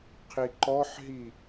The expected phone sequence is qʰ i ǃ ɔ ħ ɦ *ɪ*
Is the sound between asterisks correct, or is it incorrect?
incorrect